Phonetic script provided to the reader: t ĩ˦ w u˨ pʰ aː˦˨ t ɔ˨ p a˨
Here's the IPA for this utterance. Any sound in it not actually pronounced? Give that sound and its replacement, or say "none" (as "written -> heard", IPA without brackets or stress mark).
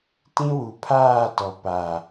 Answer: none